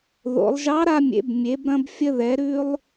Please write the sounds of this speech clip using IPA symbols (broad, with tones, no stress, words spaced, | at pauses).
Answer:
ðo̰˩˧lˠʒɑ˧˥ɾa˧mʲḛ˩˧b mʲe˩˧bɾɐ̃˧b fʲə˧ðɛ˩˧ɾʉ˧lˠ